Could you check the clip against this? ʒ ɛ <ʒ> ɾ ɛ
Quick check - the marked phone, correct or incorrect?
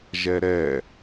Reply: incorrect: none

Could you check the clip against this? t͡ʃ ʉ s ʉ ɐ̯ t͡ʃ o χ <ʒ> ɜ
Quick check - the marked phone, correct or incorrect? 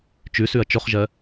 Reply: correct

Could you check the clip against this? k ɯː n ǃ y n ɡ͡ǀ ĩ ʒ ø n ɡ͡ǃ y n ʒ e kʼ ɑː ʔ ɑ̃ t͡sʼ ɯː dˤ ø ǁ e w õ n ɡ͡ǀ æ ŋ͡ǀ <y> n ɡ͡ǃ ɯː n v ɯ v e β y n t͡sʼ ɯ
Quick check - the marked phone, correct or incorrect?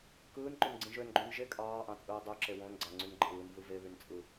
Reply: correct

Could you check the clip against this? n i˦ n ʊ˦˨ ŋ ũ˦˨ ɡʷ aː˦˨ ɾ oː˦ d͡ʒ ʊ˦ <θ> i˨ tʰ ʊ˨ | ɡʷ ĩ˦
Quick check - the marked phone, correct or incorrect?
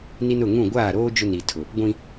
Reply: incorrect: n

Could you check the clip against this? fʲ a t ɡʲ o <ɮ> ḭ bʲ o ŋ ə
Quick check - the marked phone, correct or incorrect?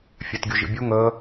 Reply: incorrect: ʒ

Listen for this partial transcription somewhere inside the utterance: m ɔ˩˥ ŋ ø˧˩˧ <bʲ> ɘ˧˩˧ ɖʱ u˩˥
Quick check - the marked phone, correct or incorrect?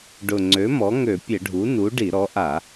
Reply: incorrect: pʲ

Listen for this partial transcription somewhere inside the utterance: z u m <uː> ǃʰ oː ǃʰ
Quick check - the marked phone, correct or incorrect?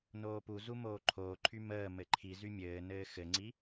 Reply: incorrect: oː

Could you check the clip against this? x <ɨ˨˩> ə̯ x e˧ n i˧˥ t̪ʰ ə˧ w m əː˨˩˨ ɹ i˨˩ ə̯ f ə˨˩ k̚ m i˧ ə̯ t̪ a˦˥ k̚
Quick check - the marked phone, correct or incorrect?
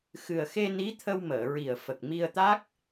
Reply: correct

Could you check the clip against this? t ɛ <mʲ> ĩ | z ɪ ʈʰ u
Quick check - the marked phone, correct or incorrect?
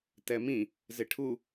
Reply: incorrect: m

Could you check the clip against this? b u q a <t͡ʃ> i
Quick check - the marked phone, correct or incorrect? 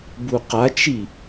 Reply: correct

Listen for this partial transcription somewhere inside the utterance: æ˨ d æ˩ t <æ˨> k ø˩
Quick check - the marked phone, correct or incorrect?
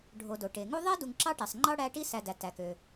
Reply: incorrect: æ˩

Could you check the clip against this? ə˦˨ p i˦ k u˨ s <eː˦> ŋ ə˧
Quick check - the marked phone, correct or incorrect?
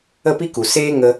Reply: correct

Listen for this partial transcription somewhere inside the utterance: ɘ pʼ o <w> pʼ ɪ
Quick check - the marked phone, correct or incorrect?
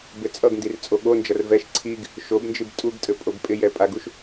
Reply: incorrect: b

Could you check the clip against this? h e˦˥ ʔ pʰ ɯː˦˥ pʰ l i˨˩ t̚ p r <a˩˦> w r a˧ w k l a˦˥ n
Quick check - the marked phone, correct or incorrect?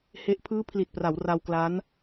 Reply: correct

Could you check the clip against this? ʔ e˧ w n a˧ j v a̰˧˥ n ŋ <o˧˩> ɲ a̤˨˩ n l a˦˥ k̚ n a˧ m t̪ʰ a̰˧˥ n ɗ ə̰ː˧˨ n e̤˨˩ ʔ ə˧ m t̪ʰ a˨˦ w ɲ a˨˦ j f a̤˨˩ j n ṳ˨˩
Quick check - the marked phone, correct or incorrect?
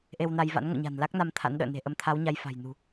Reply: incorrect: o̰˧˨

